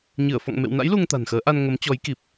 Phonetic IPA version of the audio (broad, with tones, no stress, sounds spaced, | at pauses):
ɲ ɨ˧˩ ə̯ f ɔ̰˧˨ ŋ m ḛ˧˨ w n a̰˧˥ j l u˧ ŋ t̪ a̤˨˩ n x əː˨˦ ʔ a˧ n ŋ ə˨˦ m t͡ɕ ɔ˨˦ j k i˨˩ p̚